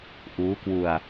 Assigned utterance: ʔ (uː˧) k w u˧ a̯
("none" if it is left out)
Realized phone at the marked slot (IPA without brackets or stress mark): uː˦˥